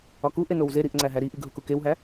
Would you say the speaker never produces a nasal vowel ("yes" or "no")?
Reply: yes